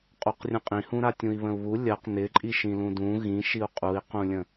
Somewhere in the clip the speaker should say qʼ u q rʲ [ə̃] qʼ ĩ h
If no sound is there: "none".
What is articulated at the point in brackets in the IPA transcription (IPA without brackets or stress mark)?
ə̃